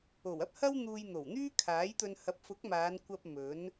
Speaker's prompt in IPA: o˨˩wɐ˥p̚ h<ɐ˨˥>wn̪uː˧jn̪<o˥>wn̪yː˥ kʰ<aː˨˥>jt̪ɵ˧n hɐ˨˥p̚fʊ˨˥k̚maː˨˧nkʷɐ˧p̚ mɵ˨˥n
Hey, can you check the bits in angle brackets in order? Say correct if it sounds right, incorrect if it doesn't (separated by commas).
incorrect, incorrect, correct